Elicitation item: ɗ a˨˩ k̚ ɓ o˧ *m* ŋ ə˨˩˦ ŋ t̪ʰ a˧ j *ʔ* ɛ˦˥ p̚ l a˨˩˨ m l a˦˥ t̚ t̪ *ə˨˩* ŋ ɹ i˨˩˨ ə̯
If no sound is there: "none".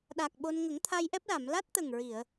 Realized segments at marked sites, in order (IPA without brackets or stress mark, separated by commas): n, ʔ, ə˨˩